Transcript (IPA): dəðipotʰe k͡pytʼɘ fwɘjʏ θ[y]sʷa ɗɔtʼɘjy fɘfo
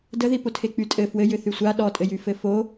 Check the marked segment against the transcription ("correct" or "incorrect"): correct